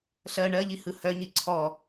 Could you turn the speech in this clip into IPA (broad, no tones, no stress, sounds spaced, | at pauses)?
ɬ ɜ ɳ ɜ ʎ i h ɯ h œ ɲ i ǀʰ ɔ